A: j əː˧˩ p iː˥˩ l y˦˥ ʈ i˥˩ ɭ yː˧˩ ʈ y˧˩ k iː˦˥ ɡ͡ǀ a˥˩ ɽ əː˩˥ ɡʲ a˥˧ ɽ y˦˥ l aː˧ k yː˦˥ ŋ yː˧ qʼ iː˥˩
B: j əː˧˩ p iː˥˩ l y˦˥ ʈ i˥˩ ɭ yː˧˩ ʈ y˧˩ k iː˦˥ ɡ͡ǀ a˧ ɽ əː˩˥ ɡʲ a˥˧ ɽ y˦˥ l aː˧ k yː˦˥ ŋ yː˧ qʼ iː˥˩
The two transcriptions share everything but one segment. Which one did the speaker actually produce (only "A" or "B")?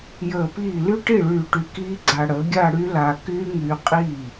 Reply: B